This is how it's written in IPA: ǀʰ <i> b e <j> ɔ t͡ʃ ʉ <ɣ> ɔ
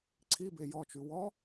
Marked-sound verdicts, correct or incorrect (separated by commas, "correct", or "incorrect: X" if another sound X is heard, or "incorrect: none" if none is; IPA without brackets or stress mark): correct, correct, incorrect: w